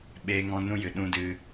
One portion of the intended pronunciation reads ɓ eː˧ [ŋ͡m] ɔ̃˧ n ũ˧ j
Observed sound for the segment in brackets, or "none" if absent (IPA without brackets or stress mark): ŋ